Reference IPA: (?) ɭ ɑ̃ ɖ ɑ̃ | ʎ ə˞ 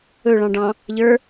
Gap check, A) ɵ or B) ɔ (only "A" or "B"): A